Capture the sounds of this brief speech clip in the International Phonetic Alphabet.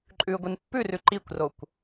ǃʼ ʉ ɡʷ ɨ n pː ʉ r ʉ ǃ i kʷ r o kʷ

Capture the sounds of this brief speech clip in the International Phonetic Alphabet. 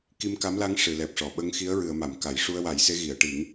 k i˧ m k a˧˥ m l a˧˥ ŋ ʂ ɨ˨˩˨ l ɛ˨˩ p̚ ʂ ɔ˨˩˨ ɓ ə˧˥ ŋ x i˧˥ ə̯ ɹ ɨ˨˩˨ ə̯ m a˨˩˨ m k a˨˩˨ j ʂ u˧ ə̯ w a˨˩˦ j s e˧˥ ɣ i˨˩˨ ə̯ ʈ i˨˩˦ ŋ

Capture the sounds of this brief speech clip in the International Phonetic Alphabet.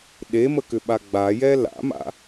ɗ e m ə k ʏ ɓ a ɡ͡b a j ɛ l a̰ m a̰

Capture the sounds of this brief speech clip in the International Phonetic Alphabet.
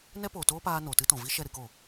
n ɛ˦ p o˨ t oː˦ p aː˧ n oː˨ t ɨ˦ t ɔ̃˨ v i˦ ʃ ɛ˦˨ ɾ ɨ˧ k o˨

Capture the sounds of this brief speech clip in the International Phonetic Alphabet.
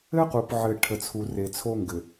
ɘ˦ q u˨ p ʕ ɘ˨ ʈʰ ə˨ t͡sʰ u˨ r e˨ t͡sʰ o˦ ŋ ɡ ɘ˨

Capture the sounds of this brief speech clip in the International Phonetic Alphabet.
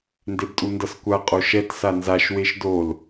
n d e b tʼ u n d ʌ s kʷ a qʼ o ʃ ɛ t s a n z a ʃ w e ʃ d o l

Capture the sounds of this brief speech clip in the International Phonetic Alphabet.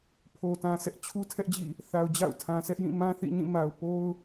pʰ o˨ t ã˨ sʰ ɛ˦ ʔ t͡ɕʰ u˦ tʰ ɛ˦ ʔ d͡ʑ ḭ˦˨ | θ a˨ ʊ̯ d͡ʑ a̰˦˨ ʊ̯ tʰ ã˨ sʰ ɛ˦ ʔ j ĩ˦˨ m ã˦ θ ḭ˦˨ ɲ ĩ˦˨ m a˨ ʊ̯ p o˦ ʊ̯

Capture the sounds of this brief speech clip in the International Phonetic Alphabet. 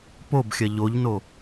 p o b xʲ ɐ ʎ o ʎ n o

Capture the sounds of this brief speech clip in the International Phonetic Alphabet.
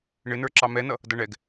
ɳ ɪ n ə˞ ǁ ɑ m ɛ n ʌ | d ʌ ɳ ɛ ɡ

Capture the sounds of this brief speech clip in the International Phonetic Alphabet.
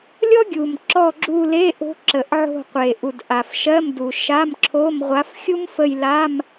lʲ ɔ˥ ɡʲ u˨˩ m ǁ ɔ˦˨ ɡ͡ǁ u˦˨ l e˧˥˧ ʔ o̤˧˥ ǁ ə˨˩ ʔ ʕ o̤˦˨ qʷ e˨˩ ʔ u˨˩ d ʔ a˨˩ f ʃ ɜ˧˥˧ m d u˨˩ ʃ a˧˥˧ m ǁʰ o˧˥˧ m ʁʷ a˧˥ f xʲ u˥ m f ə˦˨ j l a˧˥˧ m

